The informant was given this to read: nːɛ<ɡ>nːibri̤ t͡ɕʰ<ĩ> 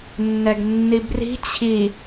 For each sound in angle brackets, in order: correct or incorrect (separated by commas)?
correct, incorrect